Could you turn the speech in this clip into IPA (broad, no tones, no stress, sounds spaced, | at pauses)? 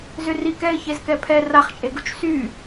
z ʏ r i k ɛ ɪ̯ ç e z k ɛ pʰ ɛ r a χ t͡ʃʼ e ɡ u t͡ʃ s y